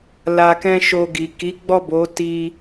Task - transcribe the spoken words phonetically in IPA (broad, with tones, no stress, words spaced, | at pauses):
la˧kɛ̃˦ʃo˧ ɡi˨ki˨˦ɡ͡bɔ˦˨bo˨˦ ti˧